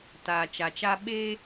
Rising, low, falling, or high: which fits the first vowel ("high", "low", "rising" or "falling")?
low